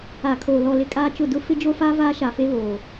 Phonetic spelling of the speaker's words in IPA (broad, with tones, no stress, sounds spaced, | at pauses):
a˨ kʰ oː˨ l ɔ˨ l ɪ˦ kʼ aː˦ t͡ʃ ʊ˦˨ d ʊ˦ f ɪ˦ d͡ʒ o˦ f a˦ v aː˦ ʃ a˨ f e˦ β oː˨